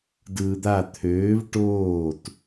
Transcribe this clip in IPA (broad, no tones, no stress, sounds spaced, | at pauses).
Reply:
d ɯː d̪ a t̪ʰ øː v ʈ oː t